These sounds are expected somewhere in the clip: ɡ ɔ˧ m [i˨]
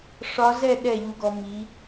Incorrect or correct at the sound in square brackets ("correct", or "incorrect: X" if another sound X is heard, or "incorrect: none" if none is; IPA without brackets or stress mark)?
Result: incorrect: i˨˦